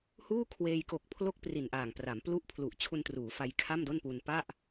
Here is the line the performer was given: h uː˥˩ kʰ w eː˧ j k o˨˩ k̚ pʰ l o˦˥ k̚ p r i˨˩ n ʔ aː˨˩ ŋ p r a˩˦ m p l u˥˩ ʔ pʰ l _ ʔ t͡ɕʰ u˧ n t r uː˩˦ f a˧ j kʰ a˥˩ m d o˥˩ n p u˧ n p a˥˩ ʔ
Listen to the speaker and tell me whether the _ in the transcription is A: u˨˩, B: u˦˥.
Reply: A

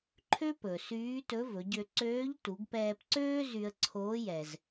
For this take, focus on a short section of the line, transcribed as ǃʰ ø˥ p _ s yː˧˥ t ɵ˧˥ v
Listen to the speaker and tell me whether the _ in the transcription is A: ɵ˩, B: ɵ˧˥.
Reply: A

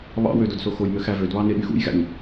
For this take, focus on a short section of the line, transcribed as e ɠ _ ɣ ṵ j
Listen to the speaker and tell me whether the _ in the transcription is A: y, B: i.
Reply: A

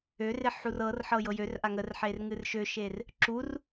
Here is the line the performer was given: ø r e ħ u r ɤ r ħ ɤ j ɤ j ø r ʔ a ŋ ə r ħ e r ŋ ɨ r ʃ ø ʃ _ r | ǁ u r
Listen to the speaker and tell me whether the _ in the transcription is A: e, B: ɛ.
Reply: A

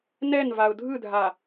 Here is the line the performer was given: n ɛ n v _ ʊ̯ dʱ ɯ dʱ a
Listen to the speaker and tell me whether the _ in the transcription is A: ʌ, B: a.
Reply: B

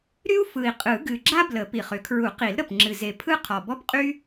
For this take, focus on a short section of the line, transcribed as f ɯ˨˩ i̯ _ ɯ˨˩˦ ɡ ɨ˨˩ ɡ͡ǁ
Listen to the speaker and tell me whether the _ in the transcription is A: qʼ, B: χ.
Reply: A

